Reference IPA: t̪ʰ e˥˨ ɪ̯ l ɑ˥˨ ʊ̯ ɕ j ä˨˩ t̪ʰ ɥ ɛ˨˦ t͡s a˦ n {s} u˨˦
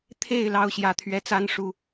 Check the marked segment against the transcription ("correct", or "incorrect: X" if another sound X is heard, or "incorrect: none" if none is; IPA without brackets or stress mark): incorrect: ʂ